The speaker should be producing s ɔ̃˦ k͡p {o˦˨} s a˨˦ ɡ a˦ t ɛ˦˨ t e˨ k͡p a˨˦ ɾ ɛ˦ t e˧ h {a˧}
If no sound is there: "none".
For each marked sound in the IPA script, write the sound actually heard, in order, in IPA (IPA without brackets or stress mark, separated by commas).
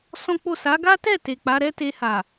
o˦˨, a˨